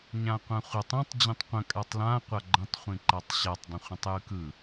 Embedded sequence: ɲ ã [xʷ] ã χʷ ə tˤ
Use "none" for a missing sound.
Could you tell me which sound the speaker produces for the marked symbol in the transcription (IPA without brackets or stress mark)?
qʷ